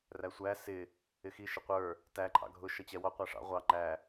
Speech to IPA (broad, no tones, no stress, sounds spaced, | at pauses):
r æ sʷ æ s ɪ | ɪ x i ʃ ɪ qʷ ə˞ | t æ ǃʰ ɑ̰ ɡʱ ʊ ʃ ʌ t͡ɕ ɛ w ɔ qʷ æ ʂ ɑ̰ ʁʷ ɑ ŋ͡ǃ æ